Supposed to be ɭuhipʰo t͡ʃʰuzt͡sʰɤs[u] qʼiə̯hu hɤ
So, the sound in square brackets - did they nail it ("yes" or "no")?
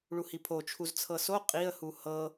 no